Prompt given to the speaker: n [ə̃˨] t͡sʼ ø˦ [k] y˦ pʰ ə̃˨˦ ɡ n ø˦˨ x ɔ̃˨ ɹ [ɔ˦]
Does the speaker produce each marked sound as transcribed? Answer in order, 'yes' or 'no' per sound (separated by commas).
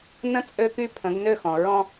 no, yes, no